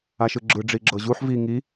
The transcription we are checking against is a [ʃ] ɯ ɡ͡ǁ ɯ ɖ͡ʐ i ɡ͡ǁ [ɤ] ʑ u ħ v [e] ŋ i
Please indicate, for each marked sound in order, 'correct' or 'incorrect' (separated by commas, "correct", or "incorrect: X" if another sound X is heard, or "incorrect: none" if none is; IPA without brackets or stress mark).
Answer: correct, correct, incorrect: i